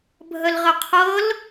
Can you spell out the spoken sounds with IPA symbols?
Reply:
bʱ ə l ʁ ə qʰ ɤ l

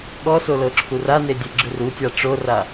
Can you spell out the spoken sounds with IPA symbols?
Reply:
ɠ ɔ s o l ɤ ǁʰ u r a n e dʲ e ɡ͡ǁ ɯ r u tʲ a ʈ͡ʂ o r a

